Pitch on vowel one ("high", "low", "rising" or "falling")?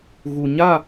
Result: low